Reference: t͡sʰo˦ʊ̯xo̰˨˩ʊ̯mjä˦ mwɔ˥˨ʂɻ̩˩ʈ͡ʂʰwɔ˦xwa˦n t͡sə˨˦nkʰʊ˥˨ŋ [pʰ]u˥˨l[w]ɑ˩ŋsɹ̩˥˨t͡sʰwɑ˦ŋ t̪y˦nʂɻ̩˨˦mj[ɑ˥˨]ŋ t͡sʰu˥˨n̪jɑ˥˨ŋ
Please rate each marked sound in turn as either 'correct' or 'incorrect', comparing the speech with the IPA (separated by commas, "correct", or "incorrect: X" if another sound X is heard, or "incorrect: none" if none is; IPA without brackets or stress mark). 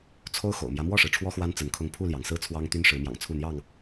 correct, incorrect: j, incorrect: ɑ̰˨˩